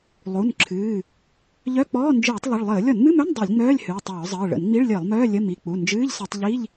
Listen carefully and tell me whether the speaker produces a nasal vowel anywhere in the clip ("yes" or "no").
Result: no